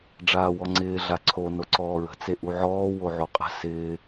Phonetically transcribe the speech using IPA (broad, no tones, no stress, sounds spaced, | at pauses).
ɖ͡ʐ aː w ɔ ŋ͡ǀ ɪː ɮ a ǀʰ o n o ǀ ɔː ɹ ə̤ t͡s e ʔ u ʕ ɔː w o ʕ o qʼ ə̤ s ɪː